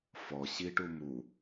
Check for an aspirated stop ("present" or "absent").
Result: absent